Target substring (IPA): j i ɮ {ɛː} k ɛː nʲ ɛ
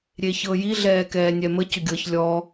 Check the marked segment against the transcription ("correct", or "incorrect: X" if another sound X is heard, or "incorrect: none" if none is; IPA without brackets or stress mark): correct